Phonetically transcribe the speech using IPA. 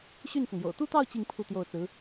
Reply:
ɕy˥˩nfɤ˩ŋjo̰˨˩ʊ̯ t̪u˥˧t̪ɑ˥˧ʊ̯ t͡ɕi˥˧ŋ pʰu˥˧t̪jo˥˩ʊ̯t͡sɹ̩˧˥

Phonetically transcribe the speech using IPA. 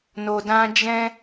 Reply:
no˨dã˧ d͡ʒɛ̃˦

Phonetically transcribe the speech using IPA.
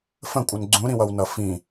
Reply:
fə̃kʷʼʌn ɡ͡ǀũɾĩwʌwnʌ fĩ

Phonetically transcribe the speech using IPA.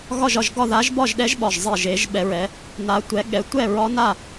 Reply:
ɣɒ˥˧ʒɒ˥˧ʒɡɒ˥˧ ða˦˥ʒbɒ˥˧ʒɗɛ˦˥ʒ ɓɒ˥˧ʒzˤe˥˧ʒ e˦˥ʒɓɛ˦˥ɹɛ˦˥ | na˦˥tʷɛ˦˥ ɠɛ˦˥ tʷɛ˥˧ɹɒ˦˥na˥˧

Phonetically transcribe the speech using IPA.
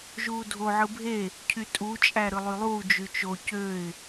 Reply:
ʒuːdʱo ʕɯbʱe | cʰytʼut͡ʃʼæɾɯ lˠylˠuː d͡ʒyt͡ʃo cøɪ̯

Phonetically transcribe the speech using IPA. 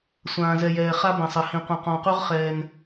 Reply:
sʷãː˨zɛ˨jɛː˨ χa˦bɐ̃˨sˤɐ˨˦hĩ˨ qʷɐ̃˨qɔ̃˨qu˦ʁ χɛː˦n

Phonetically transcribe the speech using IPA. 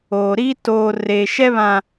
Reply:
oː˨ɾiː˦ toː˨ reː˨ʃɛ˦βã˨

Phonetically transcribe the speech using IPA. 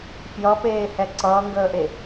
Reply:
fjʌpeːhɛ ǀʌːŋɡəːʔe

